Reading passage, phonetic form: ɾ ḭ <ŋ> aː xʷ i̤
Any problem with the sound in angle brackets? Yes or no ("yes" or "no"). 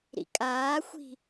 yes